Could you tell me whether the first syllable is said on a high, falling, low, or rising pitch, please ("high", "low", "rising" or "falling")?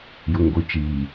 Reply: low